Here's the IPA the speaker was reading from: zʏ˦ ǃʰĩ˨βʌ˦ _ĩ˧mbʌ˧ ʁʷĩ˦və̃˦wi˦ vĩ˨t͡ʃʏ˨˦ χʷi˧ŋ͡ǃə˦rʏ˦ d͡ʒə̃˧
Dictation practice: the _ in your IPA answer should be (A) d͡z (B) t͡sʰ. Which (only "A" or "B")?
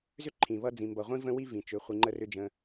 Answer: A